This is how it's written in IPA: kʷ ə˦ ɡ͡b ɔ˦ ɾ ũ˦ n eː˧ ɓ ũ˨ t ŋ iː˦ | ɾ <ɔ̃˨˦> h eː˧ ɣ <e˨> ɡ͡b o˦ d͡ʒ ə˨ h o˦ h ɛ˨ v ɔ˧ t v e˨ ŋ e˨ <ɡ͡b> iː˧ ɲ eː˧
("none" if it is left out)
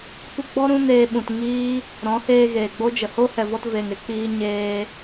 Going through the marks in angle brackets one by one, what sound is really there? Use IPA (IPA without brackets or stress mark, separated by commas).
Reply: ɔ̃˨˦, eː˨, k͡p